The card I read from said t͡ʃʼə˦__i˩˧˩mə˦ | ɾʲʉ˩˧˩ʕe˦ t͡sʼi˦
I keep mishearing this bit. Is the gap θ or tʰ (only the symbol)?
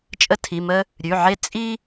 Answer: tʰ